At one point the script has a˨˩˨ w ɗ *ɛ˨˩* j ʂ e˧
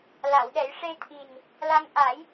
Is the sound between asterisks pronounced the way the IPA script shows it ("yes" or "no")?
no